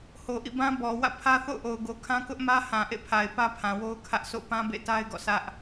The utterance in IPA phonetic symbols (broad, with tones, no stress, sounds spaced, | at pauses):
h o˨ ʔ ḭ˦˨ b ã˦ b ɔ˨ w ä̰˦˨ pʰ ä˦ θ o̰˦˨ ʊ̯ ʔ o˨ ʊ̯ ɡ o˨ kʰ ã˦ k ʊ˦ ʔ m ä˦ h ã˨ ʔ ḛ˦˨ pʰ a˨ ɪ̯ p ä˦ pʰ ã˨ w o˦ ʊ̯ kʰ ä˦ ʔ sʰ o̰˦˨ p ã˦ b ḛ˦˨ t a˦ ɪ̯ ɡ ɔ̰˦˨ sʰ ä˦ ʔ